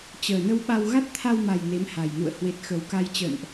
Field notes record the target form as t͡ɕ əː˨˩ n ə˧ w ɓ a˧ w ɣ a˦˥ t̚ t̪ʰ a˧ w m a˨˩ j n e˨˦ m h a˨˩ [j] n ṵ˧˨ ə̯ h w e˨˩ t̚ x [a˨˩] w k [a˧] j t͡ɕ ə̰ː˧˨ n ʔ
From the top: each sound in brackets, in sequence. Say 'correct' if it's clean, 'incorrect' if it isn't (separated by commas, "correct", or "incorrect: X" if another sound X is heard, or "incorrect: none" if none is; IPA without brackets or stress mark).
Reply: correct, incorrect: ə˨˩, correct